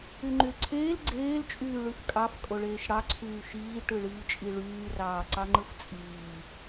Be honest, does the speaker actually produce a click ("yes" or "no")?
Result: yes